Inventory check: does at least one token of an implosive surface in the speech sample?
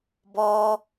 no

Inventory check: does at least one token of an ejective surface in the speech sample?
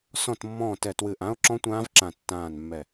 no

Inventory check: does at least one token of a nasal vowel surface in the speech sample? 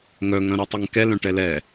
yes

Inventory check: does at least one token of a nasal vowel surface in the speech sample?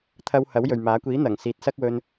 no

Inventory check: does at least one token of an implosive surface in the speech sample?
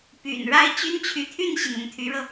no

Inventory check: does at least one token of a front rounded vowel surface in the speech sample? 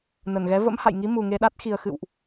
no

